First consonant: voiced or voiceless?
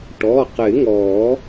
voiceless